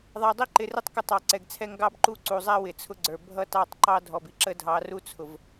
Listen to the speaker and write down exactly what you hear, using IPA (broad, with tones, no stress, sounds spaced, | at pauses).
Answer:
ðˤ æ˨ dˤ i˦ ǃ ɪ˨ r ɪ˦ tˤ k ə˦ tˤ ɑ˨ ǀ ɛ˨ ɡ t͡sʰ ɛ˦ ŋ ɡ ɑ˦ b ǃ u˦ ǀ u˨ zˤ æ˦ w ɪ˨ t͡sʰ ʊ˦ ɡ͡ǀ ə˞˨ bʱ ʌ˦ t ɑ˦˨ tˤ ǃ ɑ˦ dʱ ɔ˨ b i˦ ǁ ə˦ dʱ ɑ˨˦ r u˦ t͡sʰ ʊ˨ v